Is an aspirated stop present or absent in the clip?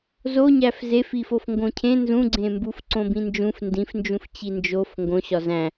present